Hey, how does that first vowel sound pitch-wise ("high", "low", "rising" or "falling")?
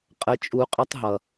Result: rising